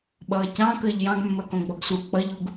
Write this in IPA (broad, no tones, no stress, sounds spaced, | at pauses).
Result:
ɓ ʌː c ɑ̃ k əː ʎ j ɑ̃ ɡ mː əː k õ ɡ͡b ɔ ɡ s u k͡p ʌ ʎ u ɡ